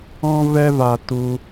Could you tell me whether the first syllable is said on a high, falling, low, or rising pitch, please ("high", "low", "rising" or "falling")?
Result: high